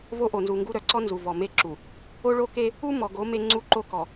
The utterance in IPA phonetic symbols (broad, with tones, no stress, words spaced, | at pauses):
vo˦ʔo˨nzu˨ŋɡu˦ ɾœ˨ǀɔ˦ nzu˨vɔ˨ me˦ǁu˨ | o˦ɭo˦ke˦ | u˦mɔ˨ɡo˨˦ me˦ ŋ͡ǀu˦˨ǃo˦kɔ˨